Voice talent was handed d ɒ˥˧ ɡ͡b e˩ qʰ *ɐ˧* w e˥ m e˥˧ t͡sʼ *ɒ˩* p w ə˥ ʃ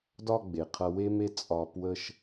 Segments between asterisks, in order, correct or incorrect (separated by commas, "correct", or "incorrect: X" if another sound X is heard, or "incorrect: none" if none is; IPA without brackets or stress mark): correct, incorrect: ɒ˧